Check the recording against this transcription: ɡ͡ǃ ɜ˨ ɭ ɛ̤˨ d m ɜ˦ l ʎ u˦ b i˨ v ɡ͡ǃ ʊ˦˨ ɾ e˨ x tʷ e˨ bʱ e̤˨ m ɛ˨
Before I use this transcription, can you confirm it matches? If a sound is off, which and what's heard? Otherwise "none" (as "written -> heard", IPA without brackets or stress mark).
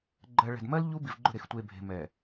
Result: none